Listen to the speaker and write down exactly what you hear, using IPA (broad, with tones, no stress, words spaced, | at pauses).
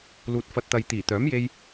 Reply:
luː˨t̚fɐ˨t̚t̪ɐ˨j t̪iː˨˩t̪œː˨˥mje˧j